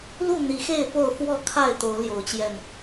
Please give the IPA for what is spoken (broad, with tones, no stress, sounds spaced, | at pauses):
l u˥˨ n̪ i˨˦ x e˥˨ ɪ̯ p o˥˨ ʊ̯ f w ɔ˥˨ kʰ a˥˨ ɪ̯ t̪ o˨˦ ʊ̯ l j o˨˦ ʊ̯ t͡ɕ j ɛ˧ n